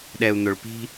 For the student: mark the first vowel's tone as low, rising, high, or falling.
low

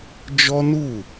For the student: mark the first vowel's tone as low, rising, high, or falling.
high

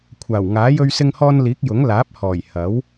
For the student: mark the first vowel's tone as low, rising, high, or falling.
low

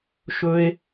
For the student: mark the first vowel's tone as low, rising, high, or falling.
high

